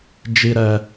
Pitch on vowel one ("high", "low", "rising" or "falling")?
high